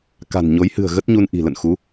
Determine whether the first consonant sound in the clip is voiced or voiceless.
voiceless